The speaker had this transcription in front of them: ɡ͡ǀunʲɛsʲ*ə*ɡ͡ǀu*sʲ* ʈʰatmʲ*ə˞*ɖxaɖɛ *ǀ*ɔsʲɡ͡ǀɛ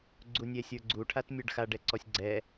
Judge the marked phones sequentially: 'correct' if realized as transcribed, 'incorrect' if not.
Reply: incorrect: ə˞, incorrect: none, correct, correct

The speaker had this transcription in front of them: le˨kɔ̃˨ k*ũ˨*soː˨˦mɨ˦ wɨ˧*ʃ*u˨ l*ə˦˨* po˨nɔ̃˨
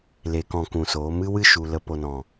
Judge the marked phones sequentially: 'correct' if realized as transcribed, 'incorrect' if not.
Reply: correct, correct, incorrect: ə˨

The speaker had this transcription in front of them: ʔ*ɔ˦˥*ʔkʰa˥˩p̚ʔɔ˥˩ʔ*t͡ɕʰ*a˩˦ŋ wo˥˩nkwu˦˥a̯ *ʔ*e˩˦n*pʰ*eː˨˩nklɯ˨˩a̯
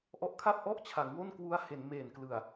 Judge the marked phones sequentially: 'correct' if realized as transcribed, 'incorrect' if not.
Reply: correct, correct, incorrect: h, incorrect: m

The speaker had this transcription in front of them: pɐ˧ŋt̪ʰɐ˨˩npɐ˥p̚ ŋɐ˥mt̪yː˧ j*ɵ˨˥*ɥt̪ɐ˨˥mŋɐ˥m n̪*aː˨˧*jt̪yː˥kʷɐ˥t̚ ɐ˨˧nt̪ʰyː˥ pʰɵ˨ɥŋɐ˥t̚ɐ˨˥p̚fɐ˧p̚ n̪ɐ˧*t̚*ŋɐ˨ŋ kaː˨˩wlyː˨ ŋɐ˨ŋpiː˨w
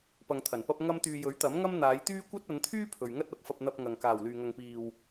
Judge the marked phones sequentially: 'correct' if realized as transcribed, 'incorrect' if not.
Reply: correct, correct, incorrect: p̚

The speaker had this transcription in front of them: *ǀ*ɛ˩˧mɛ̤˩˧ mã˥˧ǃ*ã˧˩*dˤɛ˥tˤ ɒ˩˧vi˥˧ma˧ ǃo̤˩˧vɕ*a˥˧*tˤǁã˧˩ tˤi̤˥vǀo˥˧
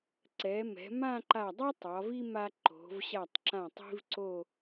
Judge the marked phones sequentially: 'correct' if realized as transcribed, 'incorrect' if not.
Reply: correct, incorrect: a˧˩, incorrect: a˧˩

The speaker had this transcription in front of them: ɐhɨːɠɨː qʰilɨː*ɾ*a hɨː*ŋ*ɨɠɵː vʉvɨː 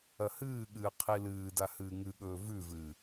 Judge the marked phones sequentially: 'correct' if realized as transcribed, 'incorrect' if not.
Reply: incorrect: d, correct

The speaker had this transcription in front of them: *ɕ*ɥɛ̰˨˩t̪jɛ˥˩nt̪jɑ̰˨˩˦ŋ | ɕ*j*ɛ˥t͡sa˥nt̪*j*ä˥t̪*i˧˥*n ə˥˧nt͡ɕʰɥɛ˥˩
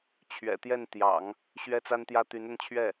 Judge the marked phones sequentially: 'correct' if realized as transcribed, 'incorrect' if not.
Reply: incorrect: t͡ɕʰ, incorrect: ɥ, correct, incorrect: y˧˥

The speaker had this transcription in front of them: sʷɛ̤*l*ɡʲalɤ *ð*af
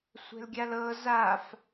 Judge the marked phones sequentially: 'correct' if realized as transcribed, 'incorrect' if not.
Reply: correct, incorrect: z

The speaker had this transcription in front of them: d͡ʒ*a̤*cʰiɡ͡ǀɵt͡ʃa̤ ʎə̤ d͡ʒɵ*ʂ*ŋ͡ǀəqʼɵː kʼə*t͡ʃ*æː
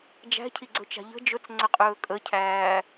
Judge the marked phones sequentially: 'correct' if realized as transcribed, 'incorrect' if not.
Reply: incorrect: æ̤, incorrect: t͡s, incorrect: cʰ

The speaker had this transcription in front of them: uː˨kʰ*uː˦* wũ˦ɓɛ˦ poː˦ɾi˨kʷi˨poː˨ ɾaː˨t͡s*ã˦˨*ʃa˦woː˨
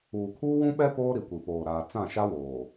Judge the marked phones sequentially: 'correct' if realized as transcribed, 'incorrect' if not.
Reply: correct, correct

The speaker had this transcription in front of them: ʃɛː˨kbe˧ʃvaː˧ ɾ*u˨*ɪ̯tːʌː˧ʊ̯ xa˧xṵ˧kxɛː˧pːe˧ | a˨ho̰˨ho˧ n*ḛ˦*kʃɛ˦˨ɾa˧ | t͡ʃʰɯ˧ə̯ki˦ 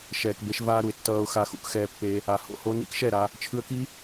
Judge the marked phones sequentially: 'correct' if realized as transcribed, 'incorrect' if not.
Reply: correct, incorrect: ḭ˦

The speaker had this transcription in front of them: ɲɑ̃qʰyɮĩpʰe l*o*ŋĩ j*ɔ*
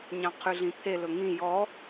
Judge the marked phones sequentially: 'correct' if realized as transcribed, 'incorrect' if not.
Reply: incorrect: ɵ, correct

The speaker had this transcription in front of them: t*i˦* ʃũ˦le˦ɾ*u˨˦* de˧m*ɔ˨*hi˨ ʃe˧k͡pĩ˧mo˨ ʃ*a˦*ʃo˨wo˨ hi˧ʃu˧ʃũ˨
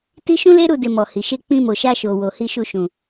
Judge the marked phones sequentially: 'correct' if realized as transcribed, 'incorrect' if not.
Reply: correct, incorrect: u˦˨, correct, incorrect: a˧

